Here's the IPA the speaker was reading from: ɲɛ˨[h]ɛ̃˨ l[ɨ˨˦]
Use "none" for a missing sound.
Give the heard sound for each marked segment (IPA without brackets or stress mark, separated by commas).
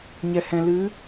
h, ɨ˨˦